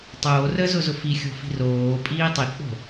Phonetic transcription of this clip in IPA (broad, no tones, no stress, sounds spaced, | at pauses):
tˤ oː r əː z ʊ z ʊ f i xʲ o̤ f i̤ r oː pʼ iː tˤ i k͡p o̤